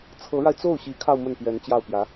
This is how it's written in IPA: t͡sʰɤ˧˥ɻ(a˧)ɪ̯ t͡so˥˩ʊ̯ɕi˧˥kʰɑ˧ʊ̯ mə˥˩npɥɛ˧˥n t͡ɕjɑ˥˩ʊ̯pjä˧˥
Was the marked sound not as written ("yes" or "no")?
no